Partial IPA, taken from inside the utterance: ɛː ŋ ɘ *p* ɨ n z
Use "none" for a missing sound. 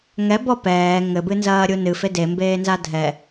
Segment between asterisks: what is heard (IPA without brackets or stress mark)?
b